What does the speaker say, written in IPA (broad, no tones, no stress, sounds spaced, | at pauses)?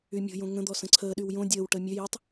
y mʲ o̤ j õ ŋ ə̃ d̪ ɔ s ə̃ ǀʰ əː ɗ y w j õ dʲ əː w ʈ əː mʲ ø j o tˤ